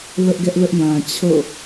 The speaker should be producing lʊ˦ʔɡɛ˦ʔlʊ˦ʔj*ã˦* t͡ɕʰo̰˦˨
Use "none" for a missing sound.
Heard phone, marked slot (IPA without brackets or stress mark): ã˨